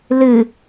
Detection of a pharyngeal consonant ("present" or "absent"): absent